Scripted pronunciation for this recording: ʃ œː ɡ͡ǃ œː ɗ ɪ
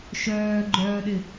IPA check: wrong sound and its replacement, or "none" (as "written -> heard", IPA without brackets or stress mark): none